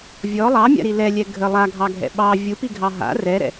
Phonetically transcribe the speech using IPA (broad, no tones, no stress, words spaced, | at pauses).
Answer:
vʲɔ lˠɑmʲa̰ɾi lɛlʲɛ ɡʱə lˠaɡʱɑɡʱɛ̰ ɓɑ vʲupiɡʱɑ ɦa̰ rɛɾɛ̰